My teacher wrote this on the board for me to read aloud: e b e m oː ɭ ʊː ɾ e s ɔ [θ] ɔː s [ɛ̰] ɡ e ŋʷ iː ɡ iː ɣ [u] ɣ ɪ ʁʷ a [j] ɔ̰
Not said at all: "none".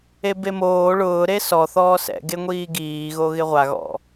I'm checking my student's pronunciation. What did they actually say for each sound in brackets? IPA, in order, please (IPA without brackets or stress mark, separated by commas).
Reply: θ, ɛ̰, o, ɣ